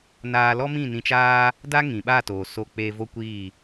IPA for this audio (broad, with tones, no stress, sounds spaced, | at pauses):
n aː˧ l ɔ˦ m ĩ˦˨ n ĩ˧ t͡ʃ aː˦ | d a˦ ŋ ĩ˨ ɓ a˦˨ t oː˨ s o˧ k͡p eː˧ v o˦ kʷ iː˦˨